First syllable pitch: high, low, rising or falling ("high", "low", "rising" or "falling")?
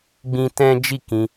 high